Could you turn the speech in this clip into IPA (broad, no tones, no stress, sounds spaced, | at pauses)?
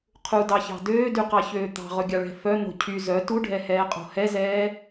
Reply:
qʰ u d ɑ ç ɑ̤ d øː d y q ɑ ç øː t̪ ɑ̤ ʁ ɵ ɡʲ ɑ ɭ ɛ̤ f œ n̪ o̤ cʰ y z œ t u ɖʱ ɛ h ɛː qʼ o̤ h ɛ z ɛː